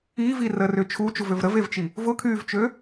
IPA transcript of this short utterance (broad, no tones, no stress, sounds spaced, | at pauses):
iː v iː r əː r ʏː t͡ʃʰ u t͡ʃ u v ø v ɾ ə v e v t͡ʃ i | v ʊ kʰ yː v t͡ʃ ø